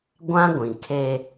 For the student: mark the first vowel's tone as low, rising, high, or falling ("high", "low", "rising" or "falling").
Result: high